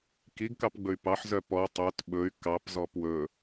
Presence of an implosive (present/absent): present